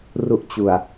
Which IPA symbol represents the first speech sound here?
r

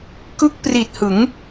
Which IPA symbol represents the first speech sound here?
k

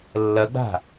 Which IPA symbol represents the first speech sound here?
lː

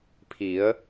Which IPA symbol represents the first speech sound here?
pʰ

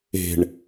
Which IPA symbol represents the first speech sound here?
e̤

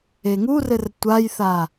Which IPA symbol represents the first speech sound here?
e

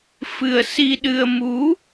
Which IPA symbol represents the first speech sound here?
f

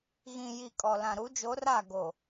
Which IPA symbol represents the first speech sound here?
ɣ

